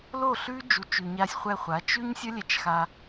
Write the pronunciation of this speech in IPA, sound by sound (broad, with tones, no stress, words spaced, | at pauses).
lo˦˨ɬʉ˦ d͡ʒu˧t͡ʃʉ˧ɲa˦sʲ χʷɛ˧χʷa˨˦t͡ʃ ʉ˦ɲsʲʌ˦lʲɛ˧t͡ʃxa˧